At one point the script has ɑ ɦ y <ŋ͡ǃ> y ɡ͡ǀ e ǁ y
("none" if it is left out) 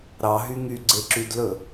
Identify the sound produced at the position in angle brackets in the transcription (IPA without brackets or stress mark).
ŋ